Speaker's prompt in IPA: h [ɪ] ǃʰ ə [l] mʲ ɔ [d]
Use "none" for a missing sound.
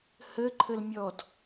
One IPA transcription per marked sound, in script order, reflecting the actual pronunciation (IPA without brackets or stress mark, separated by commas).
ə, l, d